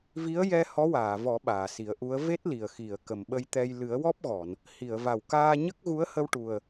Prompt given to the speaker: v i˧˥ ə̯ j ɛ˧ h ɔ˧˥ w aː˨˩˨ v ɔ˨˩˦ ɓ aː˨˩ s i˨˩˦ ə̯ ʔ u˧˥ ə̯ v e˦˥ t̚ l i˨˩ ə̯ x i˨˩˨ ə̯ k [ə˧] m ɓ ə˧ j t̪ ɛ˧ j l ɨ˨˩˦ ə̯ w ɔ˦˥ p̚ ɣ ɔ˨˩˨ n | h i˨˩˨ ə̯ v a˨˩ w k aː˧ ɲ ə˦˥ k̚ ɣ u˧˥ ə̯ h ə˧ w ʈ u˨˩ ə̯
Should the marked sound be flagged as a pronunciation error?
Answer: yes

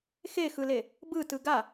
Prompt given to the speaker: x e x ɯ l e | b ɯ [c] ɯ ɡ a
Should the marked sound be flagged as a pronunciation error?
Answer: yes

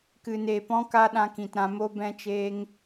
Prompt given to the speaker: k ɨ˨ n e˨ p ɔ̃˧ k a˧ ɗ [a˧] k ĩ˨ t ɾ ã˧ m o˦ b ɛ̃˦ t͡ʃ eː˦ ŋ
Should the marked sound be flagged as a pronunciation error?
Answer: yes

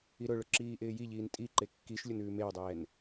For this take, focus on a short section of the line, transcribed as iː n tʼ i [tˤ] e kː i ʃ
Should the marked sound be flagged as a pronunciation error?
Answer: yes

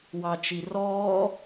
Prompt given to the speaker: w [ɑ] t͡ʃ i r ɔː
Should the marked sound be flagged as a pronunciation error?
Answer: no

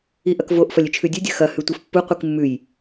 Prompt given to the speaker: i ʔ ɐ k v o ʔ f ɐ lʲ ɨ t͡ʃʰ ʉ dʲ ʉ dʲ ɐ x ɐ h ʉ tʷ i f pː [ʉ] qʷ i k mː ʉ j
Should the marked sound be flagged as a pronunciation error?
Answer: yes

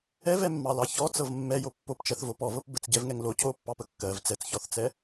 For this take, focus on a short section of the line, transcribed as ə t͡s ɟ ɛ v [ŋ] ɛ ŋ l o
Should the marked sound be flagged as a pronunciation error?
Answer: no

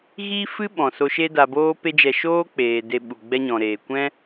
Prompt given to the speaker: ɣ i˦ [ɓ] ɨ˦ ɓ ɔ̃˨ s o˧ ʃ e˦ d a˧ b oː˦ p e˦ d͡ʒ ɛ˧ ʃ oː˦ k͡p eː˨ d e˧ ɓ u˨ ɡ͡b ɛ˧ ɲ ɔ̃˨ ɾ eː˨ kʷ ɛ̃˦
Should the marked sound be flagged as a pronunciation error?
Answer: yes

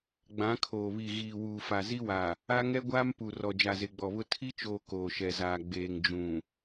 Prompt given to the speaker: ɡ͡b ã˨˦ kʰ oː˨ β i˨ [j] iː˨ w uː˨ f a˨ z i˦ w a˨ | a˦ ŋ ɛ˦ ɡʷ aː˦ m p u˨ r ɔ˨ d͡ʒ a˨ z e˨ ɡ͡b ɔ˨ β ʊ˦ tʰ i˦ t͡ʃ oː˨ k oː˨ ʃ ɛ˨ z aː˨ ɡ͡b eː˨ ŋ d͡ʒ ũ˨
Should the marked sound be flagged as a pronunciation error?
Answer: yes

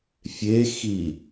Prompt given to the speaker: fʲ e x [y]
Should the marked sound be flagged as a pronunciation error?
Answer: yes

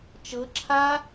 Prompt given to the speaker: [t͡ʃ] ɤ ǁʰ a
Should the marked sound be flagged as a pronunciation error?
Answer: no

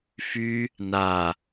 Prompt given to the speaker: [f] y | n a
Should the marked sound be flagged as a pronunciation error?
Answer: no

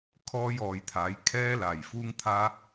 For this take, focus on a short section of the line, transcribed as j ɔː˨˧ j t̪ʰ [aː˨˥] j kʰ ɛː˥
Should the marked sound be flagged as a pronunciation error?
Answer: no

